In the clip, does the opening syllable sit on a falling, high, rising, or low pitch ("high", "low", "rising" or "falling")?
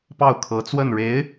falling